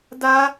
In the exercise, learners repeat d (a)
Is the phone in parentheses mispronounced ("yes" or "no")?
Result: no